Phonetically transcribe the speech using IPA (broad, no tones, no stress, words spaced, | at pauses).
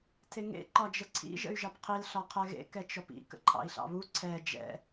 tʰeŋḛ ǃɒd͡ʒəǀʰḭ ʒə̰y̯ʒɑpqʰil ɬɒqʰɛɣḛ kɛt͡ʃɔpḭ kə̰ǃʰɑ̰i̯ɬɑ̰βu ǀʰɛ d͡ʒɛ̰